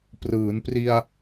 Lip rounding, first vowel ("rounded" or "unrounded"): unrounded